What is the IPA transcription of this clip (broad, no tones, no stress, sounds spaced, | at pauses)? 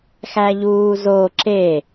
x æ ʎ uː z o ǁ e